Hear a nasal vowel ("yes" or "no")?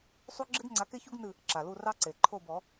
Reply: no